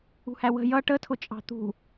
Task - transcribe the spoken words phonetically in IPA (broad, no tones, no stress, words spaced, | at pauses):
ṳhæwə̤ jʌ ʈətʰʊt͡ʃʼɑ̤ t̪ṳ